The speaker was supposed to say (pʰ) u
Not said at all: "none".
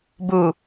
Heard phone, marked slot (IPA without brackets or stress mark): b